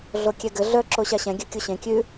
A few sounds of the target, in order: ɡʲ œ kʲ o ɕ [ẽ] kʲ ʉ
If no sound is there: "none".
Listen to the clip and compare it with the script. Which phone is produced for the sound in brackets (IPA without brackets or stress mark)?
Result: ẽ